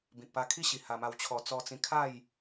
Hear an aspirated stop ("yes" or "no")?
yes